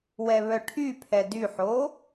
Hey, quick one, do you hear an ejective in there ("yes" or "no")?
no